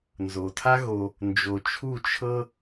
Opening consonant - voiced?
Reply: yes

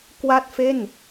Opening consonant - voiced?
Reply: no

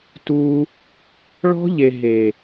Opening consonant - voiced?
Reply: no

